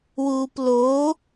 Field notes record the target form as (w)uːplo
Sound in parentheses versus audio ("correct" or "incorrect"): correct